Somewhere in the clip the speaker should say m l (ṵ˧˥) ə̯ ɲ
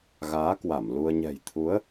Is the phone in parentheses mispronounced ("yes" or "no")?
yes